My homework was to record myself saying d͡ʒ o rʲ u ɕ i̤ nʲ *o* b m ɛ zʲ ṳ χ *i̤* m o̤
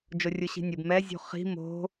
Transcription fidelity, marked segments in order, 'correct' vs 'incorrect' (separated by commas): incorrect, correct